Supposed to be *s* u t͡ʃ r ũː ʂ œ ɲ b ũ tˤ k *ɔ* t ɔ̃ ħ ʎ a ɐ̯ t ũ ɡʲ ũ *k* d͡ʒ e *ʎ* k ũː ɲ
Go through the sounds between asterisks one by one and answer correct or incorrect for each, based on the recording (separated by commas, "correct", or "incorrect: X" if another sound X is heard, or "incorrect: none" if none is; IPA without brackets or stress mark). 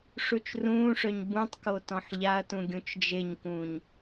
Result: incorrect: ʂ, incorrect: o, incorrect: t͡ʃ, incorrect: ɲ